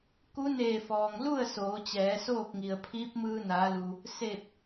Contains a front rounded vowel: no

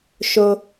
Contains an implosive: no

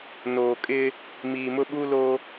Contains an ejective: yes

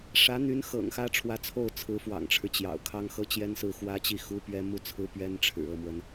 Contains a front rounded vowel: yes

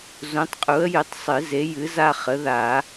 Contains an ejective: yes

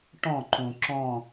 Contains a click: yes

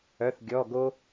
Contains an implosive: no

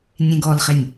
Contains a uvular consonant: yes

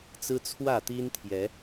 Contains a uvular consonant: no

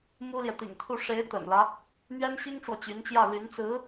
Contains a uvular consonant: no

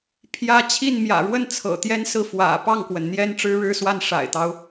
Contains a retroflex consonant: yes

